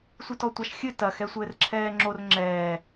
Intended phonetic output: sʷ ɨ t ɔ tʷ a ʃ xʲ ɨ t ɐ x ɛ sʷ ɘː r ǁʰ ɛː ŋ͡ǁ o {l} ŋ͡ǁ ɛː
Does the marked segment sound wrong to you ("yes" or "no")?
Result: yes